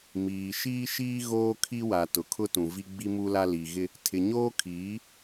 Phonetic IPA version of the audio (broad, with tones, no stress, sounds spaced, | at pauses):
m iː˨ ʃ iː˦ ʃ iː˦ ɣ oː˦ kʰ i˦ w a˨ t ʊ˨ kʰ ʊ˦ t ũ˨ v i˦ ɡ͡b i˦ m u˦ l a˦ l i˨ ɣ ɪ˦ | tʰ ɪ˨ ɲ oː˦ kʰ iː˨˦